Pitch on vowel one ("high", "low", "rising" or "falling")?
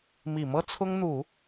low